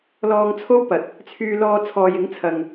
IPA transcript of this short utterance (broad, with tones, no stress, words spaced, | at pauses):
lɔː˧ŋt͡sʰo˥wpɐ˨t̚ | t͡sʰyː˧lɔː˧ t͡sʰɔː˨jɪ˨˥ŋt͡sʰɐ˨ŋ